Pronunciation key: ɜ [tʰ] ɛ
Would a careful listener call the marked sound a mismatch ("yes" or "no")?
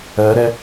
yes